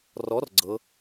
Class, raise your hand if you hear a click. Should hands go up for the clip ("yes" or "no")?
yes